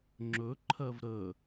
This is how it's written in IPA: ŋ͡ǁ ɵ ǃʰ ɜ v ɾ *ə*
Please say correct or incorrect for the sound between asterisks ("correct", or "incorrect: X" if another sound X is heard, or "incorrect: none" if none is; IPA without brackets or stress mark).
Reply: correct